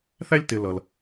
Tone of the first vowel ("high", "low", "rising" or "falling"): high